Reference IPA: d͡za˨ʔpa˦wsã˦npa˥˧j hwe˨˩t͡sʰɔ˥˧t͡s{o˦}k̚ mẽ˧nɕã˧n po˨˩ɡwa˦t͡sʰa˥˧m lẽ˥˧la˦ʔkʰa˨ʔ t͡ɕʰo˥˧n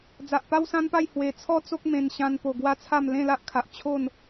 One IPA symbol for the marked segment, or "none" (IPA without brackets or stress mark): o˦